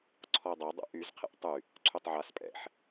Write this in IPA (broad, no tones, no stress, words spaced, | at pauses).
ǀʰɔo̯dˤe dˤɛ̰ʔyzqʰɛ̰ʔ tˤy | ǀʰytˤʕas pʼɛ̰ħ